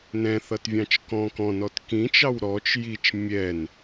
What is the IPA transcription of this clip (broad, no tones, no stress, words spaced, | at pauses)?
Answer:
nɛ̃θʌtvʲɑ̃t͡ʃ kɔ̃ kɔ̃nɔt kĩt͡ʃɑw ɾɔt͡ʃ jit͡ʃ mʲɛn